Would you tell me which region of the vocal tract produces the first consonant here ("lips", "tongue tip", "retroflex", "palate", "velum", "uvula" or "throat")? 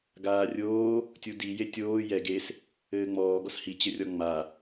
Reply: velum